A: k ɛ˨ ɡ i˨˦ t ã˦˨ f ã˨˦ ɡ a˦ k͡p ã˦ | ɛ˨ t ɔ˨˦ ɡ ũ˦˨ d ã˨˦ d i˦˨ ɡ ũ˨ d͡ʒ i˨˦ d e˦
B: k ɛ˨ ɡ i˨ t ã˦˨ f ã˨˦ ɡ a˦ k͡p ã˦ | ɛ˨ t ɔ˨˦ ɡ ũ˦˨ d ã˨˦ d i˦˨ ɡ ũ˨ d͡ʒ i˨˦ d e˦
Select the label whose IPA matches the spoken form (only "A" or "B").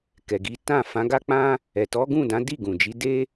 A